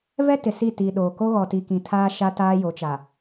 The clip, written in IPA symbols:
v ɛ˦ t ɪ˨ s i˦˨ t i˨ ɗ oː˨ k o˦ ɣ ɔ˨ t i˨ k ĩ˨ tʰ aː˦ ʃ a˦ t aː˦ j o˨˦ t͡ʃ a˨

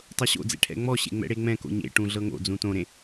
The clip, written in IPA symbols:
tˤ ɤ ɕ o̰ d͡z ḛ ʈʰ ɛ̰ ŋ͡m ɔ ɕ ḛ ŋ͡m ɛ̰ ɽ e ŋ͡m ɛ̃ k o̰ ɲ ḛ ʈ ũ ɮ ɤ ŋ o̰ d͡z ũ t õ ɾ ẽ

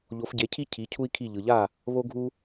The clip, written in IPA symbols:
ʎ o˩˥ f ɟ e˩˥ cʰ i˥ cʰ i˩˥ cʰ u˥ i̯ kʰ i˥˩ ʎ ɯ˩ ʎ a˥˩ | β o˥ ɡʱ u˥

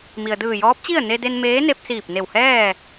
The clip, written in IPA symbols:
m i˩ ə̯ d ɯː˧˩ j ɔː˧˥ p̚ t͡ɕ i˥˨ ə̯ n e˧ d e˧ n m eː˧˥ n e˧ p̚ s iː˧˩ p̚ n e˧˩ w h ɛː˥˨

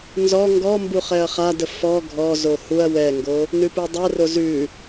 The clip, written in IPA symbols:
n z ɔ ŋ ɡ ɔ m b u χ ɛ ɐ̯ χ a d ə f ɔ ɡʱ ɔ z o h u ɐ̯ w ɛ ŋ ɡ o | n ʉ p ʉ dˤ ɛ r o z ʉ

